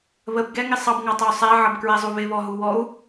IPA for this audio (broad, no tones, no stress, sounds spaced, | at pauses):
β ə b ɡ ɛ ŋ ɪ sˤ ɑ b ŋ ɑ tˤ ə u̯ sˤ æ ʕ ʌ b k ɹ ɛ zˤ u β ɪ β ɔ ɦ u w ɔ u̯